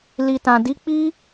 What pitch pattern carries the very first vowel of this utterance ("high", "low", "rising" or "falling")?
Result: low